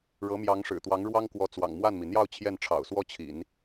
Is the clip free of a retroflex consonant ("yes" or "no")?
no